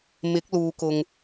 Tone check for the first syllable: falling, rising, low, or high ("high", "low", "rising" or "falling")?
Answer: rising